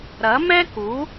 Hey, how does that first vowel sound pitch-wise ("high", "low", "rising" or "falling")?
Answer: rising